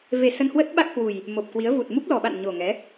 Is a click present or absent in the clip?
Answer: absent